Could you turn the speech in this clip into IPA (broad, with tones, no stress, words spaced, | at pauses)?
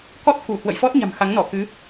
kɔ˦˥t̚ku˧˩ hwə̰˧˨jfɔ˦˥t̚ɲa̤˨˩m xa˨˦ŋnɔ˧˩kɨ˨˦